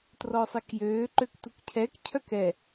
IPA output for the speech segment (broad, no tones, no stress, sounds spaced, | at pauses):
t r ɔ sˤ ɛ k j øː ǃ ø k t u k cʰ ɛ k cʰ œ k ɛ